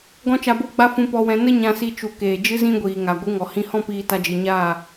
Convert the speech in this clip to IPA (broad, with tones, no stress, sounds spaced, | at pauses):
ɡ ɔ̃˦ t͡ʃ a˧ b o˦ ɡ͡b a˦ f ũ˧ p ɔ˧ w ɛ̃˧ n ə˦ ɲ ã˧ s i˧ t͡ʃ u˨ k eː˨ d͡ʒ ɨ˦ z ĩ˦ ɡʷ iː˨ ŋ a˨ ɡʷ ɨ˨˦ ŋ ɔ˨ h ĩ˧ h ɔ̃˦ p iː˧ t a˧ d͡ʒ ɨ˨ ɲ aː˦˨